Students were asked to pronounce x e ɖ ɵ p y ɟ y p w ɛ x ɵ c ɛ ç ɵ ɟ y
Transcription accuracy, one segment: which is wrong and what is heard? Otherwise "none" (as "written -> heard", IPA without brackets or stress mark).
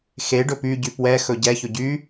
c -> ɟ